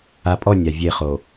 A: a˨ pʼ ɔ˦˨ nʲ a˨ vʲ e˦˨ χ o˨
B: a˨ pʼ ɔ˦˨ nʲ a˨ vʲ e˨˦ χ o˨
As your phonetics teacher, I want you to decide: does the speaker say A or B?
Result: A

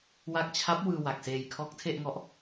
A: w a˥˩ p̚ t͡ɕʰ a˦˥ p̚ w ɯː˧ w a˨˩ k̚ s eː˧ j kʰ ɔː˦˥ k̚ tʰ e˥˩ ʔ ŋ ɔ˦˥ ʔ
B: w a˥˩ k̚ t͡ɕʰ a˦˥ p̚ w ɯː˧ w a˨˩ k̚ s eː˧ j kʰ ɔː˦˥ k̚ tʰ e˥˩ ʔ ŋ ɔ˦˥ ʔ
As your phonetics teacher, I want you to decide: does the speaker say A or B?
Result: B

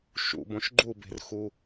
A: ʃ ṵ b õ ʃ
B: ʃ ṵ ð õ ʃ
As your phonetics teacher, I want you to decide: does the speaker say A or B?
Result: A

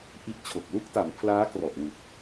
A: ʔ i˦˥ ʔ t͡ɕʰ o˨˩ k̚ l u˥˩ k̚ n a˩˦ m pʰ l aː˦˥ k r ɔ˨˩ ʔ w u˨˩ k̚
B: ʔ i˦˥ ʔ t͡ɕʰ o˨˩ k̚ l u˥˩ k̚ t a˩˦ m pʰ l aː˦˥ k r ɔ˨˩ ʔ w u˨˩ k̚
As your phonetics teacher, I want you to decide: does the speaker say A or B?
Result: B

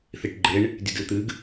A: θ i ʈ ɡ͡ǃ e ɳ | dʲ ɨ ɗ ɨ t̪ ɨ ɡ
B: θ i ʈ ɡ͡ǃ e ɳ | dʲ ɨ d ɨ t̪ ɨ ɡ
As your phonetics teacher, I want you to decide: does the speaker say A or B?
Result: B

